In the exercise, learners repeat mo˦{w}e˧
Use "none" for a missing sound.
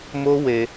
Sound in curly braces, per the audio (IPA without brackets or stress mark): w